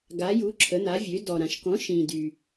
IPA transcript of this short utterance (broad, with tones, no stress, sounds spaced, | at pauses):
ɡ a˩˥ j u˩˥ ǁʰ ə˩˥ n̪ a˩˥ vʲ ø˩˥ d ɔ˨ ɾ ã˨ ʃ k ɔ̃˩˥ ʃ ĩ˨ d y˨